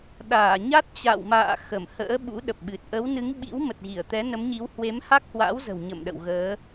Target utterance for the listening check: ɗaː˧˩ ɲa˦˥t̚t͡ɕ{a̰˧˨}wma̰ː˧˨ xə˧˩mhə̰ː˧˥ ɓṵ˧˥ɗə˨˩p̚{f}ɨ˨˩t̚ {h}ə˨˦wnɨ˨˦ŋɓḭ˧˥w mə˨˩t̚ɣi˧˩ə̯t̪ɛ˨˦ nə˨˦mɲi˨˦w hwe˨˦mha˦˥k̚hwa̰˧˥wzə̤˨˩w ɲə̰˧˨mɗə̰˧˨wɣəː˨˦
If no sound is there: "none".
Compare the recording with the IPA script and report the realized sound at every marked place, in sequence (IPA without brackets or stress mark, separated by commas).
a̰˧˨, ɓ, ʔ